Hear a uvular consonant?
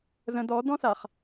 yes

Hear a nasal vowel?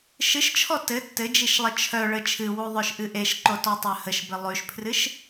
no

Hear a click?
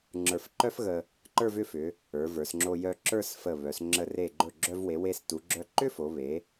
yes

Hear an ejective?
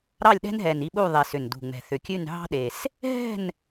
no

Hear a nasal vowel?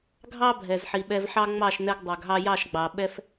no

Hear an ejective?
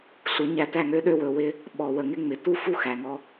no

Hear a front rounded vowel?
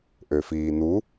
yes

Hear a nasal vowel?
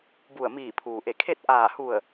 no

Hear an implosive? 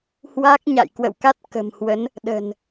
yes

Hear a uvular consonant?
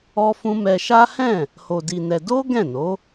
no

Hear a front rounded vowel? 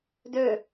yes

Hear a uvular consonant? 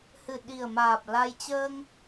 no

